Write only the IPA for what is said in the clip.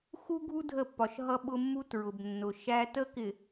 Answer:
x u˦ ɡʱ u˦ dʱ ə˦˨ pː ɒ˨ ʃ ɦ ʌ˦ ɓ ʊ˦ mː u˦ t ɹ ʊ˨ b nː ʊ˨ ʃ æ˦ t ə˦ k ɪ˨

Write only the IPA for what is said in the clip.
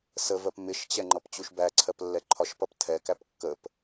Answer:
s ə v ɜ p m ɪ ʃ t͡ɕ ɛ ŋ͡ǃ ʌ p t͡ɕ u ʃ b æ ǀʰ ɜ p lː ɛ ǃʰ ɒ ʃ p ʌ p tʰ ɛ k æ p kː ə p

